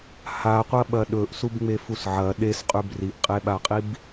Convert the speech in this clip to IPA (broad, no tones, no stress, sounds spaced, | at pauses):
h a qʷ ɐ ɓ ɐ ɗ ɵ ʔ s u b ŋ͡m e f u s ʕ ɐ ɗ e s qʼ ʉ b r i ʔ qʼ e ɓ a qʼ i b